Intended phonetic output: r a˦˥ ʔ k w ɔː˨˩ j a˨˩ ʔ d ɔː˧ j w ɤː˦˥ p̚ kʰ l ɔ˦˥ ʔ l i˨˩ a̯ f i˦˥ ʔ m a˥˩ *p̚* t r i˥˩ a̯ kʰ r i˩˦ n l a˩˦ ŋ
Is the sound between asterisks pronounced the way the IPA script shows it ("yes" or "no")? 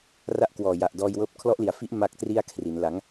no